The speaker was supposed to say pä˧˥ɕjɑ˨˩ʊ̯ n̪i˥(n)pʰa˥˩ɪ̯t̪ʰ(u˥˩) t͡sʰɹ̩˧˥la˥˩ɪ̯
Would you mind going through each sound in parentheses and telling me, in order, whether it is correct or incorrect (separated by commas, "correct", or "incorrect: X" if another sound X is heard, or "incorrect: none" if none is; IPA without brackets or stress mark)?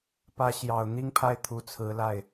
incorrect: ŋ, incorrect: u˧˥